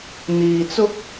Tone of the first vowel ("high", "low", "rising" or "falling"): low